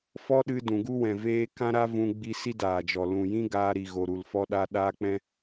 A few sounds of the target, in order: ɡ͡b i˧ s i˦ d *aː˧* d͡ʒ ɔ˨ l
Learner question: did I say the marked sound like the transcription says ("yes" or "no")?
no